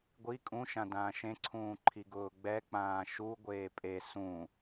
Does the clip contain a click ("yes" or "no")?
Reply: yes